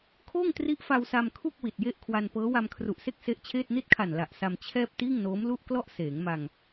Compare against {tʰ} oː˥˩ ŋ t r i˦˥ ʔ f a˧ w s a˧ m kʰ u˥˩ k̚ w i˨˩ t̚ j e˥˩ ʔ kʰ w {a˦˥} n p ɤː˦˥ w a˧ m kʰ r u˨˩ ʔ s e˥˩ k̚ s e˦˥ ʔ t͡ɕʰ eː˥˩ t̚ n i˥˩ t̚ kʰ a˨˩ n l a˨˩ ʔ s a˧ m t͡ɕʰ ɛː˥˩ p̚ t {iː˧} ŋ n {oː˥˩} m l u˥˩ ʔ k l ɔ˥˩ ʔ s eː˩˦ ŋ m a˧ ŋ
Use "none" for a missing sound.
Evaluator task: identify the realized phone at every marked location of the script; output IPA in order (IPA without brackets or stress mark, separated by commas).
kʰ, a˧, iː˥˩, oː˦˥